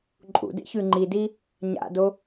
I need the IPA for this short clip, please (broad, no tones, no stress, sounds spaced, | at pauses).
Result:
ǃʼ ṵ d ḛ ç ʉ ŋ͡ǃ i d i | ɲ a̰ d o